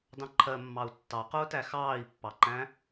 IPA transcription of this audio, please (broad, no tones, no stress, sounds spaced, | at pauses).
d ɑ̃ ǃʰ ɜ mː ɑ u̯ tː ɑ q ʊː t æ x ɑː i̯ pː ɑ ǃ æ̃